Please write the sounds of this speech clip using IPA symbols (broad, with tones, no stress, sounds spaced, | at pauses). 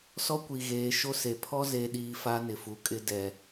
s ɔ˦ kʷ i˨ ɣ eː˨˦ ʃ o˦ s e˨ pʰ ɔ˦ z e˨ ɗ iː˨ f a˦ n ɪ˨ f u˨ kʼ ɪ˦ d ɛ˨